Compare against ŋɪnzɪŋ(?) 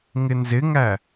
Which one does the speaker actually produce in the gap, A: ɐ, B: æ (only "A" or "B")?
B